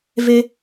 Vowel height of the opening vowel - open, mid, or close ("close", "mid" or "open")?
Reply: mid